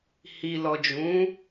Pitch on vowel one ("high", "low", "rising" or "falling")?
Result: low